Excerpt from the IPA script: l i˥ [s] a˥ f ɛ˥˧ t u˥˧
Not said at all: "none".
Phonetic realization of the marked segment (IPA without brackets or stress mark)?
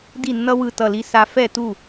s